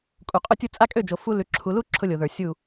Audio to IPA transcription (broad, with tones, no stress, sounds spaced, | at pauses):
kʼ u˨ qʼ ʊ˦ tʲ u˦ t͡sʼ a˦ kʼ ø˦˨ d͡ʒ o˨ f u˦ l ʉ˨ ǁʰ u˨ l u˦ ǁʰ ʊ˦ lʲ o˨ ð ə˞˨ sʲ u˦˨